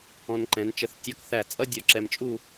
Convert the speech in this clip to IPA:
ɔ̃˧nǃɛ̃˩˧nt͡ʃə˧˩θ tʲɔ˧kθæ˧˩t͡sʼʌ˥ dʲɔ˧˩ǁɛ˧mt͡ʃʼu˥˧

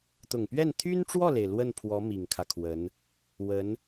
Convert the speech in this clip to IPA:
t̪ʊ˨˩ŋpɥɛ˥˩n t̪ʰy˥nʈ͡ʂwɔ˥˩le˩ɪ̯ lwə˥˩npʰwɔ˧˥ mi˨˩ŋkʰä˦kʰwə˧˥n | wə˧˥n

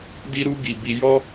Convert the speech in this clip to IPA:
di˦ɾu˦ɡi˧ bi˧jɔ˦

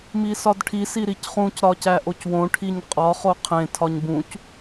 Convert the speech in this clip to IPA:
misɒdʈʰis iɾicχũc ɾɒcæʔocwõ ʈʰiɲqʼɒ χoqʰẽ tʰɒɲbũc

